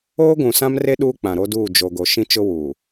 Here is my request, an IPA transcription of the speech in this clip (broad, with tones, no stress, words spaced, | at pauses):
oː˦ɡʷũ˨ sã˦mre˦ ɗuː˦k͡pã˨ɾo˦duː˦˨ d͡ʒo˨ɡo˨ ʃĩ˦t͡ʃʊ˦ wu˨